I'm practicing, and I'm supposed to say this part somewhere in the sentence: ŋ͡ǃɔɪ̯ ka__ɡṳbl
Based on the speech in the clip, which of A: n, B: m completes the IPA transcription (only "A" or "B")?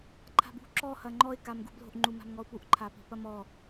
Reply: B